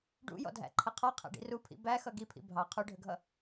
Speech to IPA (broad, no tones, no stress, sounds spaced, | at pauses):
ɖ ṵ j ɔ̰ dʱ æ̰ ǃʰ ə qʰ ɔ qʰ æ̰ ɖ ḭ r u pʰ ḭ b æ x ʌ ɡ i pʰ ḭ bʱ ɑ qʰ u ɖʱ ə ɡʱ ʌ